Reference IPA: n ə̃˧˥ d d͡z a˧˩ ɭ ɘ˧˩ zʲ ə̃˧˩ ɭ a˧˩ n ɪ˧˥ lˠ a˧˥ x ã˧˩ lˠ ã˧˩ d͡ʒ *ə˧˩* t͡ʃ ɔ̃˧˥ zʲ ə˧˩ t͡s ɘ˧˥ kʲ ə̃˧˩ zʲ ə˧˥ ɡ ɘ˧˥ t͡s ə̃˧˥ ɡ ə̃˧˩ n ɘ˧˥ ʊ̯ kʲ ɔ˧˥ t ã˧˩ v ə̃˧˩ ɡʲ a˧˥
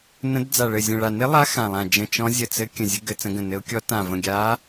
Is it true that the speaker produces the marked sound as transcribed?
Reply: no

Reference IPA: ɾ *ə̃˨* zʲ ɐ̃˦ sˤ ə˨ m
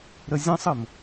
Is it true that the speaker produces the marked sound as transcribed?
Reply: no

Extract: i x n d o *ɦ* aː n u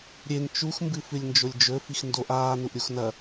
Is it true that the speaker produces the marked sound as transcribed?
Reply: no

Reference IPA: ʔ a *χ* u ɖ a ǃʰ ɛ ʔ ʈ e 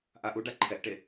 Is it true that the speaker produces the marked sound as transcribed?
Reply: no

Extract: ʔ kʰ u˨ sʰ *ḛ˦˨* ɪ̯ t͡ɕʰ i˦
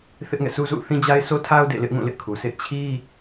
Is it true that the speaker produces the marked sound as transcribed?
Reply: yes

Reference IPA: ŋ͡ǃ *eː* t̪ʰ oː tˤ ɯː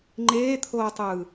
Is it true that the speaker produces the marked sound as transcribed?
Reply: yes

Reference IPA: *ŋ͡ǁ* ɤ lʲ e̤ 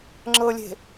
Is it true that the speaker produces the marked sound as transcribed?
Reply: yes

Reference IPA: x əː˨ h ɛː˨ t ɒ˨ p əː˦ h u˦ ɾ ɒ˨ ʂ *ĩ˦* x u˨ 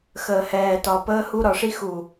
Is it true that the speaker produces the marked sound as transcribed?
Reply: no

